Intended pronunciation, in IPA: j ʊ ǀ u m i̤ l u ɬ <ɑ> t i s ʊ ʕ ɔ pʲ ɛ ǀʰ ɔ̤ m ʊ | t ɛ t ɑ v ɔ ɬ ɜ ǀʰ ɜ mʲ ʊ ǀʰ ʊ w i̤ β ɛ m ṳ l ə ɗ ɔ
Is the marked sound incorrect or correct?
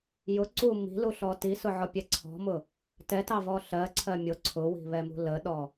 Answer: incorrect